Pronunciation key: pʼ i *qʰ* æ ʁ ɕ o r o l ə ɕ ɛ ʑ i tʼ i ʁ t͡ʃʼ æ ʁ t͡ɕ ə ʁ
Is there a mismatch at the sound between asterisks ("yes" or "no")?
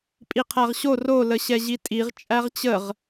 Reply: no